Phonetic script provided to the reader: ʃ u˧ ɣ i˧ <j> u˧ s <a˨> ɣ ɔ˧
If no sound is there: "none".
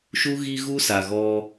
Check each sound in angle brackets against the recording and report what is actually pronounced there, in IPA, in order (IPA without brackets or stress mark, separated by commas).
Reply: ɣ, a˨